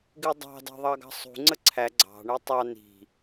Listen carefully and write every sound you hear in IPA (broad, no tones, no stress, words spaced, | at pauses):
ɡɪdˤɑ̤ dɑ̤ðˤɑɡɑ̤sˤṳ ŋ͡ǀəǀʰæ ɡ͡ǀɑ̤ ɳɛtˤɑ ni̤